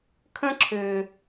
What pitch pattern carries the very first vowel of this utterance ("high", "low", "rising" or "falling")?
high